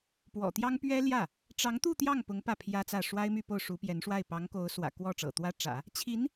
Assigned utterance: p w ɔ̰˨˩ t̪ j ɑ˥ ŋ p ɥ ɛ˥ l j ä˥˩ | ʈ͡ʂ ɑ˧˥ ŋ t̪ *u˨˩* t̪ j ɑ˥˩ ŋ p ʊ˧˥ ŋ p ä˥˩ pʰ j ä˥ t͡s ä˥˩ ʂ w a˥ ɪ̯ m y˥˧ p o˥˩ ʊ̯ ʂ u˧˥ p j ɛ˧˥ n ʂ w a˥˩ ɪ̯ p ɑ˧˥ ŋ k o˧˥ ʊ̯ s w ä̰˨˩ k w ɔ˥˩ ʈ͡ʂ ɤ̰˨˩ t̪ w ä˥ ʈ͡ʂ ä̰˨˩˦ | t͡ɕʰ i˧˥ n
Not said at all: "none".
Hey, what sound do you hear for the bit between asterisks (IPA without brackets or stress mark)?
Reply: u˥˧